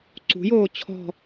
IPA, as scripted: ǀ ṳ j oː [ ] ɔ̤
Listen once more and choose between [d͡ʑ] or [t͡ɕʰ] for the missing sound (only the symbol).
t͡ɕʰ